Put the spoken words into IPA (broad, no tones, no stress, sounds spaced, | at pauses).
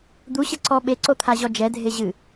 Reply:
d̪ u ɕ ɘ ǀ ɔ ɓ e ǀ o t̪ʰ a ʑ ɔ d͡ʒ ɛ dʱ e ʑ ɨ